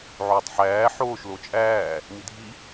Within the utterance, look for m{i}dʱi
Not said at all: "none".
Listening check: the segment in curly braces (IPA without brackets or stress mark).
i